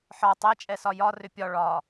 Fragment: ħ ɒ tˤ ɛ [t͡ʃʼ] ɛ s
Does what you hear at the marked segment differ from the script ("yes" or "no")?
no